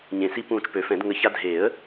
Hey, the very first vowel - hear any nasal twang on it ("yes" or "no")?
yes